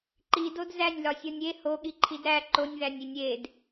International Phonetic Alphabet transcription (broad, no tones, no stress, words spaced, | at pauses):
ǃidod zænʲlɒsʲɒnʲ e hoɠiǃʰid ɾæ ǃonʲðænʲinʲ ed